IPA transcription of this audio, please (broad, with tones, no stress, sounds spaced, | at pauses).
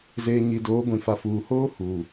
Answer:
z eː˨ ɲ i˨ d oː˨˦ ɡʷ ĩ˨ f a˨ f uː˨ h oː˦ h uː˨